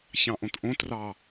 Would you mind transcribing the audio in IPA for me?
ç ɑ̃ ʔ õ t ʔ õ t r ɑ

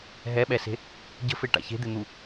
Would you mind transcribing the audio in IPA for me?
ɦ ɛ ɓ ɛ s e̤ | ɟ ə̤ f e ʈ a̰ ç e̤ d̪ e n̪ u

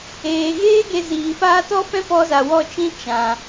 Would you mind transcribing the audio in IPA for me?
eː˨ ɣ eː˦ ɡ e˧ z iː˨ f aː˦ t ɔ˦ f ɛ̃˦ p ɔ˧ z a˨ w ɔ˦˨ t͡ʃ ĩ˦ t͡ʃ ã˨

